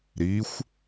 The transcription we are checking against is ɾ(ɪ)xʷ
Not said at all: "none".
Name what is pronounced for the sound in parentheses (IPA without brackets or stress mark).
i